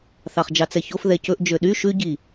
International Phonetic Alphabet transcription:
θ ɑ χ d͡ʒ ɑ t͡s ɛ ç o f ð ɛ c ɵ ʔ d͡ʒ ø ɗ y ʃ ʉ ɟ i

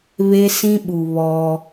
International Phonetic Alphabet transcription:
β e˦ s ĩ˦ ɓ u˨ β ɔ˦

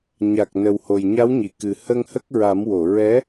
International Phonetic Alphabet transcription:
ɲ a˨˩ k̚ n ə˨˩ w h o˨˩ j ɲ a˧˥ w ɲ i˨˩˨ k ɨ˨˩ h ə˧ ŋ h ə˦˥ k̚ ɹ a˨˩˦ m w o˨˩˨ ɹ ɛ˧˥

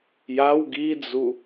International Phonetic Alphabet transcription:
j a w ɡ i d͡z u

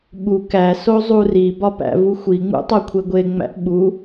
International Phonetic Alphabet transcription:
ɓ u k æ s o zˤ u r i b ɒ p æ̰ v u xʷ i ŋ͡m ṵ tˤ o kʷʰ e ɡʷ e ŋ͡m æ̰ ʔ ɓ u

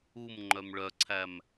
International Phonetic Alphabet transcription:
u m ŋ͡ǃ œ m ɭ œ ǀʰ æ m

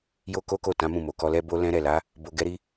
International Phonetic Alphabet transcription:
j o˦ k o˦ k o˦˨ t ã˨˦ m ũ˦˨ m o˨ k ɔ˧ l ɛ˦ b o˦ l ɛ̃˦ ɾ ɛ˦˨ l a˨˦ | b o˧ ɡ ɛ˦ ɾ i˦

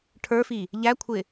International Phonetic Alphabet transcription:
ʈʰ ə˞ f i | ʎ æ kʷʰ ɪ

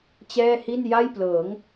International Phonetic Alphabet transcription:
t͡ɕ ɛː˥˩ h i˥˩ n j a˥˩ j p l ɤː˩˦ ŋ

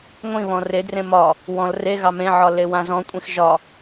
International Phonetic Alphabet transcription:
ŋʷ ĩ β ɔ̃ r e d r ẽ m ɒ | w ɔ̃ l r e ɣ ɑ m ẽ ʕ ɒ l e w ã z ɔ̃ kʷʼ ĩ x ʒ ɒ

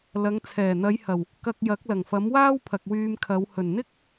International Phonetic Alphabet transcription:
l ɐ˨˧ ŋ t͡sʰ ɛː˨˩ n̪ ɐ˨˧ j h ɐ˨˩ w | k ɐ˧ k̚ j ɐ˨˥ k̚ l ɐ˨˩ ŋ f ɐ˨˥ m w aː˥ w pʰ ɐ˨ k̚ w yː˧ m kʰ ɐ˨˧ w h ɵ˨˩ n n̪ ɪ˥ k̚

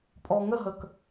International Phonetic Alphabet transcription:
pʼ ɔ ŋ ə ɦ ə k

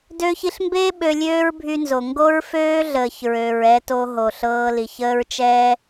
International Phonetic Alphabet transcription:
d øː˧ ç i˧ ɬ m b eː˦ ɓ ø˧ lʲ øː˦ ɹ bʱ y˧ n z o˨ ŋ ɡ o˦ ɹ f øː˦ ɮ əː˨ ç ɹ ø˨ ɹ ɛ˧ t o˧ ɦ o˨ ɬ ɤː˧ l i˨ ç əː˦ ɹ t͡ʃ ɛː˦

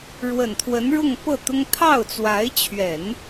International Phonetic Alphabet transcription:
ɻ w ə˨˩ n t̪ʰ w ə˧˥ n ɻ ʊ˥˧ ŋ p ɤ˥˩ t̪ ʊ˥ ŋ t̪ʰ ɑ˥˩ ʊ̯ t͡s w a˧˥ ɪ̯ t͡ɕʰ ɥ ɛ˨˩˦ n

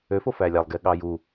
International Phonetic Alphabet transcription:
ø f o f æ lʲ ɑ lˠ ɡ e ɠ ɑ j u

